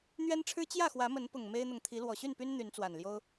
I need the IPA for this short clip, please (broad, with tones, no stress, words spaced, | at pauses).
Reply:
n̪ɥɛ˦nʈ͡ʂʰɻ̩˦ t͡ɕjä˥˨xwä˨˦mə˨˦npʊ˨˩ŋ me˦ɪ̯n̪ʊ˨ŋ t̪ʰi˨˦lwɔ˨˩ɕy˥˨npy˦n n̪y˨˦nt͡swa˨˩nljo˦ʊ̯